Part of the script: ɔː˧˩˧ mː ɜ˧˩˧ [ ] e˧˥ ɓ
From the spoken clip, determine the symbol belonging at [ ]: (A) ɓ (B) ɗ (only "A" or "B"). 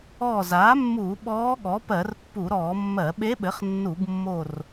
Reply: A